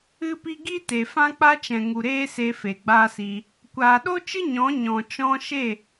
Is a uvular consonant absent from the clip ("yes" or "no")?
yes